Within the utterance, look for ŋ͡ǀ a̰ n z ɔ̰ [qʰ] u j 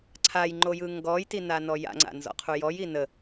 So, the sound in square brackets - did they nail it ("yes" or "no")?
yes